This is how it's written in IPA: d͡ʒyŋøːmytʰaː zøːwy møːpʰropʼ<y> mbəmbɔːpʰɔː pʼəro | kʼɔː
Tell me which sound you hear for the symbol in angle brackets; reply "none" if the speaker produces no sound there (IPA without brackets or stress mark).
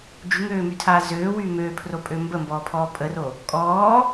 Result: ø